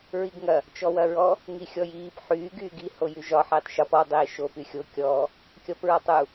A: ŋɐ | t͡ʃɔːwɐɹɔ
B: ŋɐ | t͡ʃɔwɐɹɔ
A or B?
B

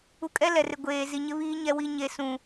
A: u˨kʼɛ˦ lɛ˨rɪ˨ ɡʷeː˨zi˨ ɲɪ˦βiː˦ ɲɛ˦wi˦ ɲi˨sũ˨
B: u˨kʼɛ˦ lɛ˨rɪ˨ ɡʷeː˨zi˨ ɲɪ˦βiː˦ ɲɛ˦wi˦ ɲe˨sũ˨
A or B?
B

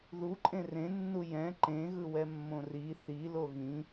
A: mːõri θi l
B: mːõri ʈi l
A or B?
A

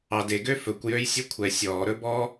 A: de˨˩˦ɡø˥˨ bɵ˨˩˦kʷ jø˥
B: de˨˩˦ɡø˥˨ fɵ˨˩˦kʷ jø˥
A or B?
B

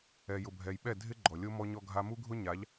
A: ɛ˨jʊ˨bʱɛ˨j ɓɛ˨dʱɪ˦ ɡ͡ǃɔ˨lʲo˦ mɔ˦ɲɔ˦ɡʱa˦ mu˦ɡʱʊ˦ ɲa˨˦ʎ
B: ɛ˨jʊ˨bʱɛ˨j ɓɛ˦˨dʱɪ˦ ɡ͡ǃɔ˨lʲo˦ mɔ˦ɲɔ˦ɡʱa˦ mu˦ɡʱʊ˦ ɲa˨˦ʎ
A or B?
B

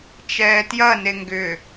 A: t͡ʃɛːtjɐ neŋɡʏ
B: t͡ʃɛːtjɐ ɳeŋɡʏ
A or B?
A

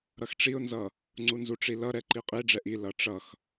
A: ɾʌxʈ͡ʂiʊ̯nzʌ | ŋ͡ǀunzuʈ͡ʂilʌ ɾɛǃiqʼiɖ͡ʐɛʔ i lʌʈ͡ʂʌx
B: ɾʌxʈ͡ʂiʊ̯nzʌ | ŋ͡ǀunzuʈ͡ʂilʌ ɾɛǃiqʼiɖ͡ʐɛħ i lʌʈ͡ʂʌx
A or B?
A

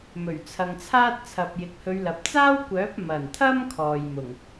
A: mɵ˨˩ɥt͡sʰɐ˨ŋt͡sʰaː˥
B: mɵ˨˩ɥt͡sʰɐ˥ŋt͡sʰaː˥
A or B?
A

